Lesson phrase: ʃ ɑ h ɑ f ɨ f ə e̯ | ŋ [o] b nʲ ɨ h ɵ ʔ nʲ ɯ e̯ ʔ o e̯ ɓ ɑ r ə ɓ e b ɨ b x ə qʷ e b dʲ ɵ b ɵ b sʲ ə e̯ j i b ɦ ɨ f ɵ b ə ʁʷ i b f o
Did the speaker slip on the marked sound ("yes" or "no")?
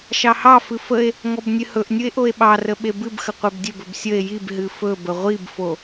yes